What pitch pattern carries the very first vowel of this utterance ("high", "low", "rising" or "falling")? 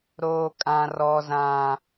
high